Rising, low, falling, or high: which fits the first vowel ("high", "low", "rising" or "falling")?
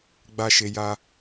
high